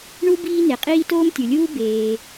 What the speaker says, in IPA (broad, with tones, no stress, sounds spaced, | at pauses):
ɳ u˥ b iː˥ n e˩ qʼ iː˥ t oː˥ m tʲ u˩ lʲ uː˥ b eː˩